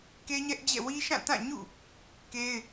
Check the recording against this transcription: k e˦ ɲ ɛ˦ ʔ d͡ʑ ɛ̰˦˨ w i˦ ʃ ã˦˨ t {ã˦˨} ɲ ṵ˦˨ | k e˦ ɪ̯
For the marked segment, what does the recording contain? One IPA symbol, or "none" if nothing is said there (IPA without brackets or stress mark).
ã˦˨